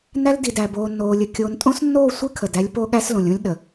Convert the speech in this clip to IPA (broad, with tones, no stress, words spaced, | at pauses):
næ˦ldi˨dæ˨ boː˨nːoː˨lʲə˨ kʲoː˨ntʼõ˦snːoː˦˨ sʷɨ˦kʰə˨d æ˦lʲpo˦ɠæ˦slõ˨lʲ õ˦lʲɗə˨